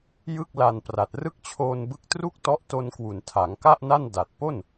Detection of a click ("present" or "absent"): absent